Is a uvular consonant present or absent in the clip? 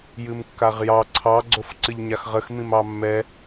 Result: present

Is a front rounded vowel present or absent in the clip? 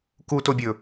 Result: absent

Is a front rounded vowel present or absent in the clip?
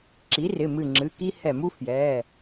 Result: absent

